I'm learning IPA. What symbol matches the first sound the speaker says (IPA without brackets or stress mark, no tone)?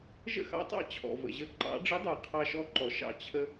ʒ